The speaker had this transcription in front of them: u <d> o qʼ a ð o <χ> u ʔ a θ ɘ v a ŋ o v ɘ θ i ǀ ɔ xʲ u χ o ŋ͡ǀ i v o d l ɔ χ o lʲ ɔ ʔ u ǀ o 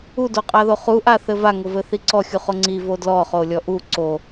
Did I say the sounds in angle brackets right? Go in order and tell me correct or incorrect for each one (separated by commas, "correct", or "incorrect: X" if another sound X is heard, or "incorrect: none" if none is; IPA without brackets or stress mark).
correct, correct